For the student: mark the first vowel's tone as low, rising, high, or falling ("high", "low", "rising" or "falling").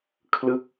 falling